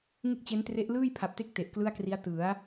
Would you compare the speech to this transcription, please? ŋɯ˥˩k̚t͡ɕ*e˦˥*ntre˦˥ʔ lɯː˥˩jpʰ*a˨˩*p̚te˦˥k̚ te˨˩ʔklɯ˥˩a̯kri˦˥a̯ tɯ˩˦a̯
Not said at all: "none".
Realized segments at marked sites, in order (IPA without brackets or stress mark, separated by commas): e˦˥, a˨˩